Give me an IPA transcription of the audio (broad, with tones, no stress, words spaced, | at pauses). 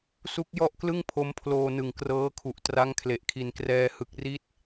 su˦˥k̚jɔ˥˩ʔklɯ˥˩ŋ pʰo˦˥mpʰloː˧nɯ˨˩ŋ krɤː˦˥kʰu˨˩ʔ tra˦˥ŋkʰle˨˩ʔkʰi˨˩nkrɛː˧ hɯ˨˩k̚ri˦˥t̚